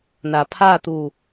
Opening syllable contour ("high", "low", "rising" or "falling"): low